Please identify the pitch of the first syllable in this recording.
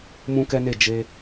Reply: high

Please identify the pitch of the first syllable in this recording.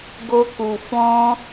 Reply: high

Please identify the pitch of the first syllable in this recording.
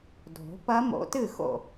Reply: rising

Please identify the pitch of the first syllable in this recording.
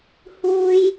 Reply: high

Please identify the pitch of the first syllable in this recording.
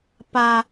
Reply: high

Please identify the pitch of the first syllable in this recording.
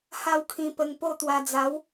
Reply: falling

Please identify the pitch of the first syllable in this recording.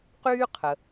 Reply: high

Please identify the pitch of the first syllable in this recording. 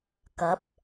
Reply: rising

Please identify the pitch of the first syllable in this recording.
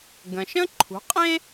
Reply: low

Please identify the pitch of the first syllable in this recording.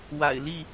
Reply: low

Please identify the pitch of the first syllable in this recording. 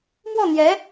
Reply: falling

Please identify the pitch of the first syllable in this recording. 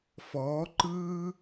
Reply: rising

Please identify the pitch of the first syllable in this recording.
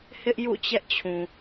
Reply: high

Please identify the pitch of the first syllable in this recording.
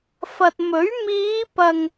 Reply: low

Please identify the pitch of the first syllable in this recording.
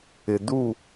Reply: low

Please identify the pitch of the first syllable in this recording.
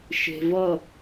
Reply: low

